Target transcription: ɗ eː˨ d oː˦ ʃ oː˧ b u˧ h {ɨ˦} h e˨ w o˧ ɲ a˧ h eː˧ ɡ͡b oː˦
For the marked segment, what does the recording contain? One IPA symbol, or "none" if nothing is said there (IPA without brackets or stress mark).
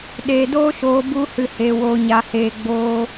ɨ˨